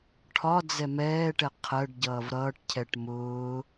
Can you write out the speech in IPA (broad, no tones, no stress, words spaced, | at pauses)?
ʈʰɒ d͡zɛmɛːʈɛ qʰɜɖ ɟʌːvɾʌːʈcʰɛʈ mʊː